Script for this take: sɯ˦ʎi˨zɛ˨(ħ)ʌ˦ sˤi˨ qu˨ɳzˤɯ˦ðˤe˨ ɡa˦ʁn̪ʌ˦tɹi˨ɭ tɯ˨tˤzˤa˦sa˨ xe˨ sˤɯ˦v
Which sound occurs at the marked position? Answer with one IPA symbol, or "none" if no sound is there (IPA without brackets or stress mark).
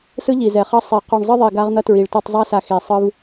χ